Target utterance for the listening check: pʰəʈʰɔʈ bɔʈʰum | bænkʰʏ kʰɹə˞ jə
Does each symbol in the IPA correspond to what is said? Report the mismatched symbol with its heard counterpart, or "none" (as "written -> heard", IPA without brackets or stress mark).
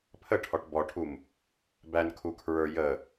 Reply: ʏ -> u